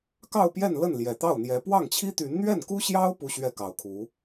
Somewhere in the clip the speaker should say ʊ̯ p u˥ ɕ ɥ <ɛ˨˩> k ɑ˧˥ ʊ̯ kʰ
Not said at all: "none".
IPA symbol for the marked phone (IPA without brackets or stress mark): ɛ˥˩